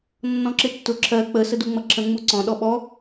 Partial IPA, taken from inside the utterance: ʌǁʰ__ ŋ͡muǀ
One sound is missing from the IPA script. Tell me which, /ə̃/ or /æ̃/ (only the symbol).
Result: ə̃